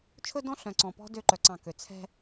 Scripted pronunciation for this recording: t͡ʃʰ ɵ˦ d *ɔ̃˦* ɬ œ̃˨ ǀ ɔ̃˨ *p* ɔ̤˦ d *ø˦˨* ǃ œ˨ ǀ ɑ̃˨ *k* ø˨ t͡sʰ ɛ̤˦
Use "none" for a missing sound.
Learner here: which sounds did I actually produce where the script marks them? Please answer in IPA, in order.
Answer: ɔ̃˦, p, ø˦˨, k

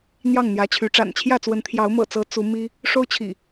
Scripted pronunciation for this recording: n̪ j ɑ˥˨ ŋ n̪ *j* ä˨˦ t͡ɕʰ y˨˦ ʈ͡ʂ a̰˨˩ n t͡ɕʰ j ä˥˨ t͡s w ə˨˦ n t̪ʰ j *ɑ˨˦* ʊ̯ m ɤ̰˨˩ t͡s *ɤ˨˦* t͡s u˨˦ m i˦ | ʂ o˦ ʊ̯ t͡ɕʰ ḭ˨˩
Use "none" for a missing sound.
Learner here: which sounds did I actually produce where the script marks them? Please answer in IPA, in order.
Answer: j, ɑ˨˦, ɤ˨˦

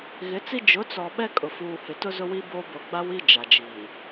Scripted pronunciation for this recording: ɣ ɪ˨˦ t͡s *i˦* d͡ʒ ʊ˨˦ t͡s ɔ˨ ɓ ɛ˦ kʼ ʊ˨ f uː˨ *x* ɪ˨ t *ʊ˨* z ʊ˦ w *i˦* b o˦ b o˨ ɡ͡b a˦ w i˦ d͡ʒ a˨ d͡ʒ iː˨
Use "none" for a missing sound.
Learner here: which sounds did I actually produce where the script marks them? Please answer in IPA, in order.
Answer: i˦, h, ʊ˦, i˦

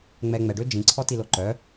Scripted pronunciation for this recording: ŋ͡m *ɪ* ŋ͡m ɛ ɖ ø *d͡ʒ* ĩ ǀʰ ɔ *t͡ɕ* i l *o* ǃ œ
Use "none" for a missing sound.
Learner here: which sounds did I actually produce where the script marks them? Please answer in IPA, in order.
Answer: ɛ, d͡ʒ, t, o

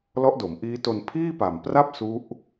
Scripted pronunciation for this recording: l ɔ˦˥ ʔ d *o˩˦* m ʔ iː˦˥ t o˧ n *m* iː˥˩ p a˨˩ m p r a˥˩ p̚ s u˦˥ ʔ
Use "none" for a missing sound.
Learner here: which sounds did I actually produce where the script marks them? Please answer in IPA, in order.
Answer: o˩˦, pʰ

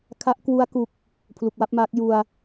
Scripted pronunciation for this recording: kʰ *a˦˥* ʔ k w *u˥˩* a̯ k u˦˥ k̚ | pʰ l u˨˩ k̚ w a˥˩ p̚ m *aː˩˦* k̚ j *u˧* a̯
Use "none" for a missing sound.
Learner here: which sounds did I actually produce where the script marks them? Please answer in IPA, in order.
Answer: a˦˥, u˦˥, aː˦˥, u˧

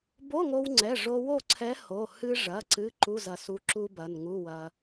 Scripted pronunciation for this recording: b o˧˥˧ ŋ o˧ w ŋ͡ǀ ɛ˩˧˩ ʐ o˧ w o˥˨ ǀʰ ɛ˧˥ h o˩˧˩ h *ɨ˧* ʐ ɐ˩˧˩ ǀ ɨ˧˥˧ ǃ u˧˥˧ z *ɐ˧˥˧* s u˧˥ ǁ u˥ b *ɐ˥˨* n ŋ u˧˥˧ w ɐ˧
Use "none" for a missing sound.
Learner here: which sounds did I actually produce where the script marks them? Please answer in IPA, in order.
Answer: ɨ˧, ɐ˧, ɐ˩˧˩

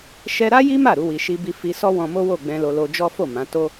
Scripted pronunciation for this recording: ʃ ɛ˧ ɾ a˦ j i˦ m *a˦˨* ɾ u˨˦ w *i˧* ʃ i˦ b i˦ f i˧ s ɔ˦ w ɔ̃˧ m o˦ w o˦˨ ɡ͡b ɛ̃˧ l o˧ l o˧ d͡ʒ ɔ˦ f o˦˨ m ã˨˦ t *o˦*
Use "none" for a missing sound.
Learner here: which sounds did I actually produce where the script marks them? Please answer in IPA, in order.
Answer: a˦˨, i˧, o˦

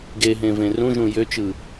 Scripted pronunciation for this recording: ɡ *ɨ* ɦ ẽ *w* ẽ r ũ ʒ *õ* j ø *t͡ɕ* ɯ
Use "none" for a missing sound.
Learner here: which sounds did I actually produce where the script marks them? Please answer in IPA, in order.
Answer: e, v, ũ, t͡ʃ

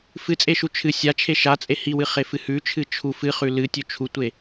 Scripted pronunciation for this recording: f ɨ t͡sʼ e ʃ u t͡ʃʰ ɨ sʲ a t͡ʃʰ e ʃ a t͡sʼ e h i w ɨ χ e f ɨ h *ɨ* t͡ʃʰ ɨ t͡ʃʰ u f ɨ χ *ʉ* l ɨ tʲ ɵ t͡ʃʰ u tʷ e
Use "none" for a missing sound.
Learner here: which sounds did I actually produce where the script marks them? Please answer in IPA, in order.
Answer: ʉ, ʉ

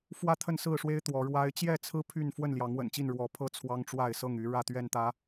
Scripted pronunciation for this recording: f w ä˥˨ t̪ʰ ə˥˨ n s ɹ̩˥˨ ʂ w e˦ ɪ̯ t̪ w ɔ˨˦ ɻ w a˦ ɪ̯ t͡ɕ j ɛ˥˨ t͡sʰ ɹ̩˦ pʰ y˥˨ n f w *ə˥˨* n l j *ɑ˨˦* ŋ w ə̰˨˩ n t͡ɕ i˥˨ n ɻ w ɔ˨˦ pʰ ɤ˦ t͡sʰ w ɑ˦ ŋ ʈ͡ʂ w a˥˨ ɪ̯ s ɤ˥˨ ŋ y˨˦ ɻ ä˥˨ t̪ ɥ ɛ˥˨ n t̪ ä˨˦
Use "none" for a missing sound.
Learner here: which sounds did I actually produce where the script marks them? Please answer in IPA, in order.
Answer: ə˥˨, ɑ˨˦

